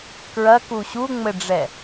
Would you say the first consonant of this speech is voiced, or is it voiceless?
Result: voiceless